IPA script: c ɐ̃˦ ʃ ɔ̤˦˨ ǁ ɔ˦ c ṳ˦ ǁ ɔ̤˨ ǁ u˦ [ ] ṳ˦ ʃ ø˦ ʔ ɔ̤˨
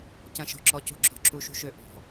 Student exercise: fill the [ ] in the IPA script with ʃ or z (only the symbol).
ʃ